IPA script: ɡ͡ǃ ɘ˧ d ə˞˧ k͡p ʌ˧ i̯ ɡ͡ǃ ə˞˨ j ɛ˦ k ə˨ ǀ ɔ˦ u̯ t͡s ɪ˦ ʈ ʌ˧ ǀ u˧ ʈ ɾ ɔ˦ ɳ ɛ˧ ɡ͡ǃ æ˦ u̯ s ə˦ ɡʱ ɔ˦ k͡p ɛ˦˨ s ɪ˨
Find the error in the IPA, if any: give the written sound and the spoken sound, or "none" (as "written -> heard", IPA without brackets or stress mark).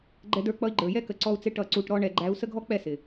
ɘ˧ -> ɛ˧